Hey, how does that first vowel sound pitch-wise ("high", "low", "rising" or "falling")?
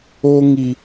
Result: high